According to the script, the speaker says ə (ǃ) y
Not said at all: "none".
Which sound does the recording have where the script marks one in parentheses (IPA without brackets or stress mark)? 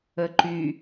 ǃ